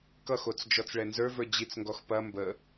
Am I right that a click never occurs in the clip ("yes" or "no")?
yes